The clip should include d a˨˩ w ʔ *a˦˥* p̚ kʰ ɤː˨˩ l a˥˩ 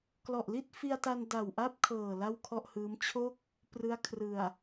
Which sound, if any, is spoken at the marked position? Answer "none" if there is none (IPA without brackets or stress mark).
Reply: a˥˩